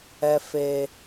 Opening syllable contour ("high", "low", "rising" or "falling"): low